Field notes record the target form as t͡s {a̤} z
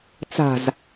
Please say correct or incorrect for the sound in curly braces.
correct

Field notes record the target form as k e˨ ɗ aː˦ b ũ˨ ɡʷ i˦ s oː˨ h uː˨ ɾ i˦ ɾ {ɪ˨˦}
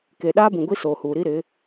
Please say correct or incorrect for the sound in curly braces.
correct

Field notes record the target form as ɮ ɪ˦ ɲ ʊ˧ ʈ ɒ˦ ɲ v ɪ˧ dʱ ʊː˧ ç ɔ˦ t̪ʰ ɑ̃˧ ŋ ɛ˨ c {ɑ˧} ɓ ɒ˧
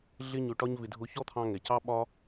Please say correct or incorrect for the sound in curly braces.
correct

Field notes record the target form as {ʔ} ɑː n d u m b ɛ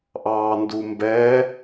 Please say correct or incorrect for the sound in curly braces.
correct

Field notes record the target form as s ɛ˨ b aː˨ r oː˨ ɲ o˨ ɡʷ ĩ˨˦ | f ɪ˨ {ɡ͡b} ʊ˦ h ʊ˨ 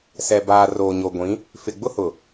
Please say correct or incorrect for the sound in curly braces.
correct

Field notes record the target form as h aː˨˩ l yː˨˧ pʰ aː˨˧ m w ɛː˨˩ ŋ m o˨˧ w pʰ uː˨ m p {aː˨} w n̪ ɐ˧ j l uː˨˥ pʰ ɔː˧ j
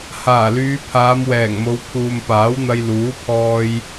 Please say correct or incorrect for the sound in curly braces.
incorrect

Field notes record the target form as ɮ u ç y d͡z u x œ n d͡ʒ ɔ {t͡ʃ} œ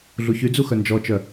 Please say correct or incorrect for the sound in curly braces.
correct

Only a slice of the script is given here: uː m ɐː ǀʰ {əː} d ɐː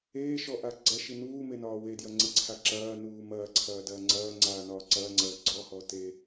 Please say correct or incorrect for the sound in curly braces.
incorrect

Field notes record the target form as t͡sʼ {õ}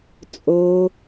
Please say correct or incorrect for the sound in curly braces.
incorrect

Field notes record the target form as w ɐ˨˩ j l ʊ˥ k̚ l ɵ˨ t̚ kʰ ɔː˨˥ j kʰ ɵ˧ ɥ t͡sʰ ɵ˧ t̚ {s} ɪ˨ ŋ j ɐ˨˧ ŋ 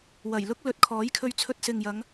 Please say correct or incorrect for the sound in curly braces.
correct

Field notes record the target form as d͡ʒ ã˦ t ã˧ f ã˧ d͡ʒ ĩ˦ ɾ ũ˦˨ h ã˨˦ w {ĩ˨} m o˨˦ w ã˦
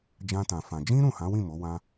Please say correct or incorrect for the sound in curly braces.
incorrect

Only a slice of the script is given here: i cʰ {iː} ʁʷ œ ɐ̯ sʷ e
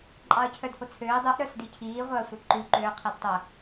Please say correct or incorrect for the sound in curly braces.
correct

